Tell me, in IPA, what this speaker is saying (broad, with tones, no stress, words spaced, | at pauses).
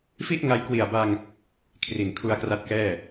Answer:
fi˥˩ʔŋa˧jkwi˨˩a̯ba˧ŋ | kʰri˨˩nkʰu˧a̯ kra˦˥t̚kɛː˥˩